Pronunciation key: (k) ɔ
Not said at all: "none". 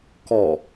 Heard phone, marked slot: k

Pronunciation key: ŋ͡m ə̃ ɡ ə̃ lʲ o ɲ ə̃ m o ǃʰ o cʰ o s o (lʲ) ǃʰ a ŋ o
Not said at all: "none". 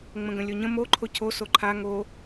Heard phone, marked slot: none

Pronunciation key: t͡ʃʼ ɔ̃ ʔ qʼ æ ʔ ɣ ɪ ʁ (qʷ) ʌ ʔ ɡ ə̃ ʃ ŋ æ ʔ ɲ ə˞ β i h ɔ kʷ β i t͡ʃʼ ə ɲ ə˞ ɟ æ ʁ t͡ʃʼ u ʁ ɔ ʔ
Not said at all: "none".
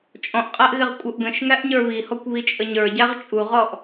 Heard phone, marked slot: kʷʼ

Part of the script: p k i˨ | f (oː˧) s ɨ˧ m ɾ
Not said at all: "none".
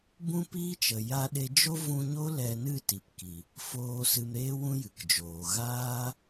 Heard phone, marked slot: oː˧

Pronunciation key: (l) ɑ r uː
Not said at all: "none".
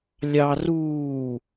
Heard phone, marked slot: lʲ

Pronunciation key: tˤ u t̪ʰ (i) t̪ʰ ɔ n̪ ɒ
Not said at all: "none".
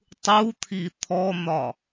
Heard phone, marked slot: i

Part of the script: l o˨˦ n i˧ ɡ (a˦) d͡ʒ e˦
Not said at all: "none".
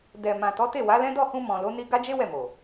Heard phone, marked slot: a˦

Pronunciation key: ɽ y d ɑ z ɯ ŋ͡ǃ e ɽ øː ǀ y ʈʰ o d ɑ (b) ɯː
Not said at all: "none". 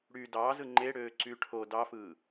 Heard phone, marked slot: f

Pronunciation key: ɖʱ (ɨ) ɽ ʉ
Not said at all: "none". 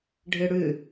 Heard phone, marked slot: ɨ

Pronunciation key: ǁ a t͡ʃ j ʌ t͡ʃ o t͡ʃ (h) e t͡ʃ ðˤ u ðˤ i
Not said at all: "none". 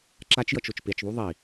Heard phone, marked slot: p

